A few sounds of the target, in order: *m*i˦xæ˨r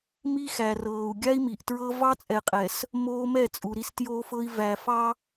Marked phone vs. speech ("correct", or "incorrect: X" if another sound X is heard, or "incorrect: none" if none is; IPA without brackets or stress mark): correct